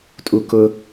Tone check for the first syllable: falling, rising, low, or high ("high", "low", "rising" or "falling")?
low